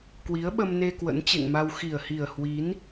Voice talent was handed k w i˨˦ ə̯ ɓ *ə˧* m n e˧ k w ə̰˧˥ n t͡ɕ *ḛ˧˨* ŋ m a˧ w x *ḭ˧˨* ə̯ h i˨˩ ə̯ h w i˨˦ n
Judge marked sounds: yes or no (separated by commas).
yes, yes, no